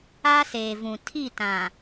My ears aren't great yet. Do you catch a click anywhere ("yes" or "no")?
no